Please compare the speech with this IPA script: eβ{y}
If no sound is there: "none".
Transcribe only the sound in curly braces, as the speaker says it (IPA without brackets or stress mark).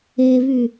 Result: y